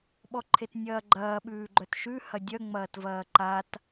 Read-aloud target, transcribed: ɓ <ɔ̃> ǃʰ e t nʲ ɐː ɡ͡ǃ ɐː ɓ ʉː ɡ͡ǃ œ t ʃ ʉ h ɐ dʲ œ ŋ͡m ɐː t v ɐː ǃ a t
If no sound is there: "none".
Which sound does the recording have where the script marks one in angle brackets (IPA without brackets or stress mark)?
ɔ